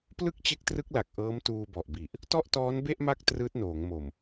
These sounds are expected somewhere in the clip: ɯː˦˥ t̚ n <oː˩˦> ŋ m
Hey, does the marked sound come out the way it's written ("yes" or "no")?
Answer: yes